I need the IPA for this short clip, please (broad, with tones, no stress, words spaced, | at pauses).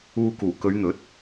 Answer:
uː˧kuː˨˩ kɵ˨˧ɥn̪ɵ˨˥t̚